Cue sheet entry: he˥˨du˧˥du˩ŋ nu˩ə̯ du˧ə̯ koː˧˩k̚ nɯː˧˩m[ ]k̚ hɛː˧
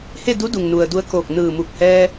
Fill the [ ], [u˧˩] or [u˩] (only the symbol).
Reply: u˧˩